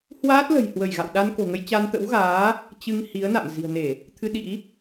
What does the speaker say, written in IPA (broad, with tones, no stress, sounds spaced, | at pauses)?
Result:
h w aː˦˥ t̚ l ə̤˨˩ j h w ə˧˩ j ɣ a̰˧˨ w ɗ a˧ n k o̤˨˩ ŋ ə˧ j t͡ɕ a˧ n t̪ ə̰˧˥ w ɣ aː˨˦ | t͡ɕ ɨ˧ ŋ h i˨˦ ə̯ n a̰˧˨ m z i̤˨˩ ə̯ n e˧˩˨ | t̪ʰ ɨ˧ ɗ ḭ˧˥